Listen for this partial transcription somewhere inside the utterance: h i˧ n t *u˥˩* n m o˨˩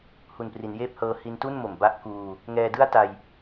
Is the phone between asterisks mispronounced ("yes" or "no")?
no